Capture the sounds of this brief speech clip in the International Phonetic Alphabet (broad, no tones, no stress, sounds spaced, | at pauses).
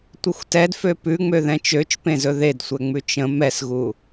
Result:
tʷ ə xʷ t ɛ d f ø p ʉ ŋ͡m ø ð ɛ̃ t͡ʃ ø t͡ʃ p ẽ z ɵ ð e d sʷ ɛ ŋ͡m ʉ t͡ʃ ə̃ m ɛ s ɣ u